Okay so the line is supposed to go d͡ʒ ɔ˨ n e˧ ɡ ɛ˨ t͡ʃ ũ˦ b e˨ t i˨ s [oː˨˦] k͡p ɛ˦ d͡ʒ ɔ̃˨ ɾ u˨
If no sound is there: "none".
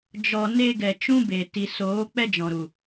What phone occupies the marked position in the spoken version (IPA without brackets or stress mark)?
oː˨˦